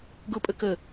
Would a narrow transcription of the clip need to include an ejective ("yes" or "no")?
yes